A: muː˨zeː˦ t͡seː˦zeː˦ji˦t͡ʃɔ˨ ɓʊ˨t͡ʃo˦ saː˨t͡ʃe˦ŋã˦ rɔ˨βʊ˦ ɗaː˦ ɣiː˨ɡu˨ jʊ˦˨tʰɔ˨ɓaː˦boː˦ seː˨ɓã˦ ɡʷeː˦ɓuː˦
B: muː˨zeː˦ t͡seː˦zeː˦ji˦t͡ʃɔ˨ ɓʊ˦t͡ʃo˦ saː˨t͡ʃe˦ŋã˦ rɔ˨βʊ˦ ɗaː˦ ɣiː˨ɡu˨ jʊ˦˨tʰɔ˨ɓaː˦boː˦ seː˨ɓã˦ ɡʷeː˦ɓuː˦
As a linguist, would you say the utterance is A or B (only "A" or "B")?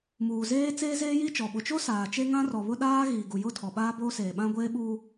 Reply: A